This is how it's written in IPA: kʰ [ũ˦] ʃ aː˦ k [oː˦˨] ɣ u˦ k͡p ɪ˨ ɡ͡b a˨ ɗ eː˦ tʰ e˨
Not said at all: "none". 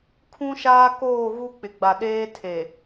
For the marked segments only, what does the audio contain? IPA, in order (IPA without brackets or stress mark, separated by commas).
ũ˦, oː˦˨